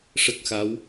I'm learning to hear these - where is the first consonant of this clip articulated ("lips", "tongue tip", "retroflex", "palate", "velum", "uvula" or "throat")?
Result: retroflex